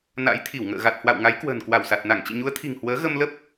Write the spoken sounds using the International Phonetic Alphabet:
na̰˧˥jt̪ʰi˧˩wŋə̰ː˧˨ ɣa˨˩t̚ hwa̰˧˨w ŋa˨˦jkwə̤ː˨˩nkwa˧˩wsa˨˩t̚ na˧˩ŋ t͡ɕḭ˧˨ɲu˨˦ə̯t̪ʰi̤˨˩ŋ hwəː˨˦ɣə˧mlə˦˥p̚

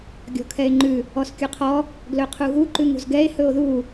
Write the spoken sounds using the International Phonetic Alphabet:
ɡʲɔ̤kʰɛe̯ŋ͡ǃʉ | ɔskʲuqʰɔ | ɡlɵqʰuɣu ǃʉŋṳzɡɛe̯ hɵo̯ðu

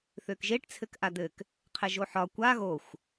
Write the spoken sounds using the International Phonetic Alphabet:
θøkʒeʈ t͡sʰɘkʔad̪ɘk | qʰɛʒoħɒ kʷa ɣoxʷ

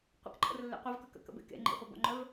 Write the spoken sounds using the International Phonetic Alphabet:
qʷə̰kǃʼə̰rlːḛ qʷɐvkœk ə̰kə̰bḛ kḛ ŋ͡ǃḛχʷebɔ̰ŋ͡ǃœv

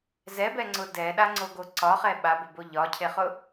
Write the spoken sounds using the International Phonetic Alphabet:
zɛbɛŋ͡ǀʊ dɛɗaŋ͡ǀoɡo ǀɒχɛ ɓabʊbo ʎɒcʰeχʊ

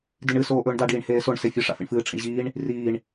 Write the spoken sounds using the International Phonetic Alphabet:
diɳɨ soːʔɵːɳda ɖiːɳheːsoɳ sefʲɨ ʂa̰fḭɳfɨː ʈ͡ʂʰḭɳʑiːɳ | riːɳ

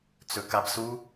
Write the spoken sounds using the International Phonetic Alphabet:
t͡sɵkabsu

